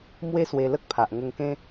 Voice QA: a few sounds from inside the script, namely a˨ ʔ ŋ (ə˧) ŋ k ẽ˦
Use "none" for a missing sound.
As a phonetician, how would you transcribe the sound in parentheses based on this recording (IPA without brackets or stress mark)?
ə˧